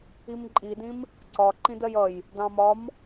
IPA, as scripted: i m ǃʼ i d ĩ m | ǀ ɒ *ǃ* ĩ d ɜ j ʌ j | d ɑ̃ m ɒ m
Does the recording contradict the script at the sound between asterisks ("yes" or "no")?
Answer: no